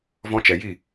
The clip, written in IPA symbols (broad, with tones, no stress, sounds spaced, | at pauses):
v ɔ̃˧ t͡ʃ ɛ˨ j i˦˨